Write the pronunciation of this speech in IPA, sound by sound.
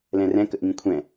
l ɛ̃ r ɛ̃ k ə ʔ ŋ ĩ kʷʰ ɛ̃

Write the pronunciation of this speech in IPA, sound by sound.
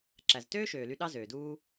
ǁ æ˨ z t øː˦ ʃ øː˨ l y˧ ɗ ɑ˦ z øː˨ d uː˦

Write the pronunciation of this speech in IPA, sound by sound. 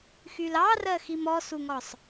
x y l ɑ r ɜ x i m ɔ s u ŋ ɔ sˤ

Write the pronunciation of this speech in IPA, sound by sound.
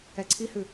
ɛ ǀʰ i h ʉ

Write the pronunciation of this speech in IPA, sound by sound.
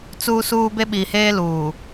t͡s uː˦ s uː˦ b e˦ ɓ i˨ h eː˦ l uː˨

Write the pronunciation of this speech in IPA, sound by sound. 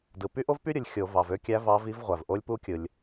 d ɯ˩ p y˥ ʔ o˥ v p y˥ ɾʲ ɯ˩ lʲ xʲ o˧˩˧ v ɑ˩ v ø˥ kʲ æ˧˥ v ɑ˧˥ v i˧˥ v ʁʷ æ˩ v ʔ o˧˥ lʲ p u˧˥ kʲ ɯ˩ lʲ

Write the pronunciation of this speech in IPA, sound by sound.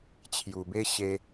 t͡ɕʰ j u˧ b e˦ ɕ e˦

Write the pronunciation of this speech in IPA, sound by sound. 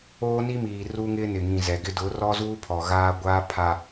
oː˦ n i˦ m iː˨ r u˦ ŋ ɪ˦ n ɪ˨ ŋ ĩ˨ z ɛ˨ ɡ ɪ˦ d ʊ˨˦ r ɔ˦ z uː˦ pʰ ɔ˨ ɣ aː˦ ɡʷ aː˦ pʰ a˨

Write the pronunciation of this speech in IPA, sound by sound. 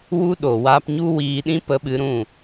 w u˦ ɗ o˨ w aː˧ p ɲ u˦ w iː˧ ɗ ĩ˦ p ə˧ ɓ ɨ˧ ɾ ũ˦˨

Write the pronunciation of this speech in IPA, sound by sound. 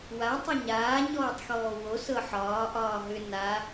w a tˤ ɛ ɲ aː ɲ ɔː tˤ x ɔː w o s ɤ ħ ɒː ʔ ɒː ɦ ʏ n a

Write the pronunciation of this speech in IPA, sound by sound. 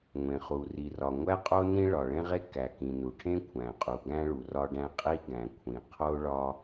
ŋʷ ẽ˩ χ u˩ r i˩ r ɒ˩ ŋʷ æ˥ qʼ o˥ n ĩ˥ ɭ ɒ˩ ɭ ẽ˥ ʁ e˥ k æ˩ k ĩ˩ n u˩ ʈʰ ẽ˥ kʷʰ æ̃˩ qʼ u˩ ɡ æ̃˥ ɭ u˩ r ɒ˥ ɖ æ̃˥ qʼ i˥ ɡ æ̃˩ kʷʰ ĩ˩ qʰ o˥ ɭ ɒ˥

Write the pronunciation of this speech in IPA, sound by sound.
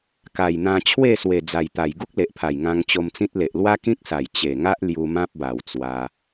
k a˨˩ j n̪ ã˧ t͡ɕʰ w e˥˧ s w e˨˩ d͡z a˨˩ j t̪ a˨˩ j ɡ u˦ k̚ l e˨ ʔ pʰ a˨˩ j ŋ ã˧ ŋ t͡ɕ o˧ m t͡s ĩ˦ t̚ l e˨ ʔ l w a˦ k ĩ˦ k̚ s a˨˩ j t͡ɕ e˨˩ ŋ a˦ ʔ l j u˧ m ã˦ p̚ b a˨˩ w t͡s w a˧

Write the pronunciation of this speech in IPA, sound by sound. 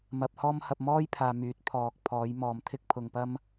m ɐ˧ p̚ h ɔː˥ m h ɐ˧ p̚ m ɔː˥ j pʰ aː˨ m yː˨˥ t̚ pʰ ɔː˨ k̚ pʰ ɔː˨˥ j m ɔː˨ m t̪ʰ ɪ˥ k̚ pʰ ʊ˨ ŋ p ɐ˥ m

